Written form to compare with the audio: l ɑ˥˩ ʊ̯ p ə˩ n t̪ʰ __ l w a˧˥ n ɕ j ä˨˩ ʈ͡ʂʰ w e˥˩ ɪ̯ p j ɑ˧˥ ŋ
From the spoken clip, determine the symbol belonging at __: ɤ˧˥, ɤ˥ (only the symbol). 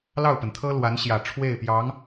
ɤ˥